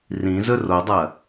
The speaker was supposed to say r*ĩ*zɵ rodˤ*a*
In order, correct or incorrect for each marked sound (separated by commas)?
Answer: correct, incorrect